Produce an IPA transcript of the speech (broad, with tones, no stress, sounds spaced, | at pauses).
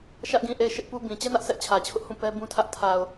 ʃ ä˦ ʔ ɡ ĩ˦˨ ʔ e˦˨ ɪ̯ ʃ ɪ˦ ʔ p u˦ b ĩ˨ t͡ɕ ɛ˦ n ä˦ ʔ sʰ ɛ˦ ʔ t͡ɕʰ ä˨ t͡ɕʰ ʊ˦ ʔ h ũ˦˨ p ɛ˦ b ũ˦ tʰ ä˦ ʔ tʰ a˨ ʊ̯